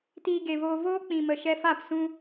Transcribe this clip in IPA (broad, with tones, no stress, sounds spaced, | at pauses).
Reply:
t iː˧ ɡ e˨ v oː˧ v oː˦ k͡p ĩ˨ m ə˨ ʃ ɛ˧ f a˦˨ p s ũ˦